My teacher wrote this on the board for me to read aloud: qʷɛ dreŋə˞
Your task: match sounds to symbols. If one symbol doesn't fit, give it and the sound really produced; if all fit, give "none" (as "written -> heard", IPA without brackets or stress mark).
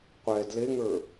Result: r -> l